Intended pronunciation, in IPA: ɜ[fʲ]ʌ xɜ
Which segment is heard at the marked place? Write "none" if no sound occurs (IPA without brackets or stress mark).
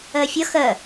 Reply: fʲ